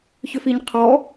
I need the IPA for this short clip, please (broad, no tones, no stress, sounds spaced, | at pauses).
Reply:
ç ʏ f i ɲ qʰ ɔ